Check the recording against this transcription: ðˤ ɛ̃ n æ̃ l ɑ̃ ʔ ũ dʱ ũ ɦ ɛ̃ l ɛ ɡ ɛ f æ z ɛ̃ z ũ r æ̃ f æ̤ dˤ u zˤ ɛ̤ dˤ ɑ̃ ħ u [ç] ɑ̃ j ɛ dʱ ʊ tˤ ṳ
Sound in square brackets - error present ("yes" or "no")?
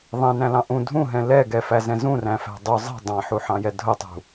yes